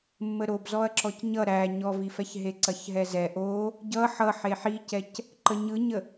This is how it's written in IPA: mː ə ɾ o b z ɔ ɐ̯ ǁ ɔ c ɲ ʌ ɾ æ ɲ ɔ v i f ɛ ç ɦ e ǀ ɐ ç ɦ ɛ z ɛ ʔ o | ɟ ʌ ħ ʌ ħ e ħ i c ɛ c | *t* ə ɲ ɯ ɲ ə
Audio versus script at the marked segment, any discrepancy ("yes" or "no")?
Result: yes